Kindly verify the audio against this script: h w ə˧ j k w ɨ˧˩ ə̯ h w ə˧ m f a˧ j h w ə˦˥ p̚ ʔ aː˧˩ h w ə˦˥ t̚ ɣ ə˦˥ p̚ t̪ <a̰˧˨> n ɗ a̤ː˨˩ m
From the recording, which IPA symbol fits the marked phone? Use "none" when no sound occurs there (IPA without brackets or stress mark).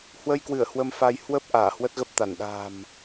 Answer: a˧˩